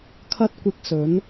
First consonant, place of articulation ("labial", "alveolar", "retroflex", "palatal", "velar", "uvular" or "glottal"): velar